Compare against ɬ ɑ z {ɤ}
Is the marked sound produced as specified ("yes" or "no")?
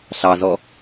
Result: no